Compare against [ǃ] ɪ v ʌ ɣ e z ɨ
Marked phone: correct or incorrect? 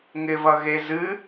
incorrect